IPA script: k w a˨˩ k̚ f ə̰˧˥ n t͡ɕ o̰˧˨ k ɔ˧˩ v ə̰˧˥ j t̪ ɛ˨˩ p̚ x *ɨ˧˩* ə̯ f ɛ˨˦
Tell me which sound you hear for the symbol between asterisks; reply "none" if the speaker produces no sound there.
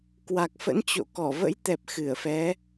ɨ˧˩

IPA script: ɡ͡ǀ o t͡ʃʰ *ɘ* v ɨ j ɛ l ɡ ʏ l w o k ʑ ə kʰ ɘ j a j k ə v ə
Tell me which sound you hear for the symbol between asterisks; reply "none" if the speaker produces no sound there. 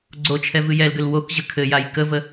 ɛ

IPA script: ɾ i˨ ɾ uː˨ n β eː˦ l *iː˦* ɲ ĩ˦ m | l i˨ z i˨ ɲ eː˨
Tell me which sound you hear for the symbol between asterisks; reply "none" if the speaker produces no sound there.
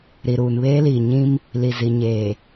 iː˨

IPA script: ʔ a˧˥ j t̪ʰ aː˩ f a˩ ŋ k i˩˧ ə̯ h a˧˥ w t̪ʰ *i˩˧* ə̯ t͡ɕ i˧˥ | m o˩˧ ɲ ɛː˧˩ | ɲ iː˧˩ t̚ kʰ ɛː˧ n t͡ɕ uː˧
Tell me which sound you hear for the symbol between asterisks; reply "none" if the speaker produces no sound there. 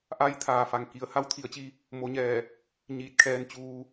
i˩˧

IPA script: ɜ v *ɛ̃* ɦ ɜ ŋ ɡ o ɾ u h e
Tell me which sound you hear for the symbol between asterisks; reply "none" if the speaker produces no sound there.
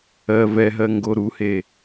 ɛ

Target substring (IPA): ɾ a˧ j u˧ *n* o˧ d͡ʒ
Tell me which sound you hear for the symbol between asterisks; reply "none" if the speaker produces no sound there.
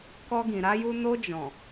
n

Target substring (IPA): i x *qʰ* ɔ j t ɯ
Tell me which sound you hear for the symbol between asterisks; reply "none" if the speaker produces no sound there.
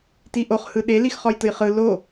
χ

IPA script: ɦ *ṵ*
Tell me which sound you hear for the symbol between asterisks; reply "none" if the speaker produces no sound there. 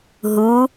u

